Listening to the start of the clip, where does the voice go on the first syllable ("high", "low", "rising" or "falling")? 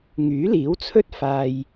rising